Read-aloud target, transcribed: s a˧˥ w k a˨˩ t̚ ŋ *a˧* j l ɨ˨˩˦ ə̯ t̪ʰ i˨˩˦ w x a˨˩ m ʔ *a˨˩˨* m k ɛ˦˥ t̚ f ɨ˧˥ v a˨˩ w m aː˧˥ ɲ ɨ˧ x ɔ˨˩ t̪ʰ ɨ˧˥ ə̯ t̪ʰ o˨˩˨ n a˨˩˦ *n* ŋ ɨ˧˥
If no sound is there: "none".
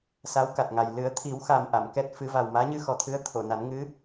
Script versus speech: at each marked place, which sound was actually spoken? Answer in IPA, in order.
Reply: a˨˩, a˨˩˨, n

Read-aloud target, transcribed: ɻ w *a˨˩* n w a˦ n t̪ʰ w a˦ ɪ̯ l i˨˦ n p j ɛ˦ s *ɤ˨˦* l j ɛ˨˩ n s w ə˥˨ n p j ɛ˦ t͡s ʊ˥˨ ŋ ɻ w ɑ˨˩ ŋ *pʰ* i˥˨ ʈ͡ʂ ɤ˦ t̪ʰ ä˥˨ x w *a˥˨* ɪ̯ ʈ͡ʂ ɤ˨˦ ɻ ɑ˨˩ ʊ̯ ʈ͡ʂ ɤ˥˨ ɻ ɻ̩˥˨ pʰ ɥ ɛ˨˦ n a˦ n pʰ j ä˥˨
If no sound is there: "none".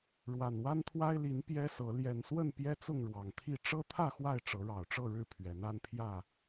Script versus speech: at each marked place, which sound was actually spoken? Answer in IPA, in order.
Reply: a˨˩, ɤ˨˦, t̪ʰ, a˥˨

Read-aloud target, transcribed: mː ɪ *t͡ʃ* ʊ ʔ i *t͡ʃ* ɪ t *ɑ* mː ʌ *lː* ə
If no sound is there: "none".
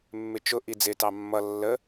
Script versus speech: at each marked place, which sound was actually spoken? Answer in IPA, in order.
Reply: t͡ʃ, d͡z, ɑ, lː

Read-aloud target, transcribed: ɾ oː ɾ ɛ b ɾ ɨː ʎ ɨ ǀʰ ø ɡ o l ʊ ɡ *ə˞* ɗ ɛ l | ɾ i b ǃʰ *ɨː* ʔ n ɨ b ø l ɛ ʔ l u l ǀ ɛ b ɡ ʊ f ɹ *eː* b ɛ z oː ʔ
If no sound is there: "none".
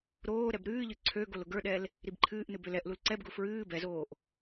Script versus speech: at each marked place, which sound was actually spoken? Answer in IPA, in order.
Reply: ə˞, ɨː, ɨː

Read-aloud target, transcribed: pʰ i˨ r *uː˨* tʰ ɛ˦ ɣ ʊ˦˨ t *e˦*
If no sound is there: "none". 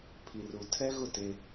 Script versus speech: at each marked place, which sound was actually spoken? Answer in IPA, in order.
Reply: u˨, e˦

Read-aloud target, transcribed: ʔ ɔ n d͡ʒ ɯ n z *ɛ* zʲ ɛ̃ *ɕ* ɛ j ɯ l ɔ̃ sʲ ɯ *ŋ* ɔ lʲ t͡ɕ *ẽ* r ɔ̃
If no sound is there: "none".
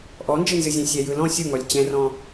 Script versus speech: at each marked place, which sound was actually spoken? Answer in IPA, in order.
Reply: ɨ, sʲ, ŋ, ɛ̃

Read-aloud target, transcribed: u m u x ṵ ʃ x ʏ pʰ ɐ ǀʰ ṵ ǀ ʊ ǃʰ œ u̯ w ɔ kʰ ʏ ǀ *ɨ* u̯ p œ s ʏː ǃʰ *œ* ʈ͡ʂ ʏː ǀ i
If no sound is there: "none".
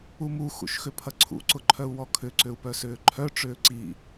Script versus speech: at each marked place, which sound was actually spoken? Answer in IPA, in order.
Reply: ʏ, œ

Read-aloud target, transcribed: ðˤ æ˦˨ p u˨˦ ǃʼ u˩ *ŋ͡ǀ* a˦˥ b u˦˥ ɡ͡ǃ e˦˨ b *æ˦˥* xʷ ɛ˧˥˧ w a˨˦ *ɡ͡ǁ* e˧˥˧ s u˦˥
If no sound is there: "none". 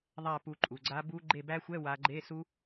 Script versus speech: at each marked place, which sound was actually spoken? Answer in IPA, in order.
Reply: ɡ͡ǀ, æ˦˥, ɡ͡ǃ

